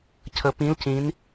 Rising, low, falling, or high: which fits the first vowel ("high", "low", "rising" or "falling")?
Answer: rising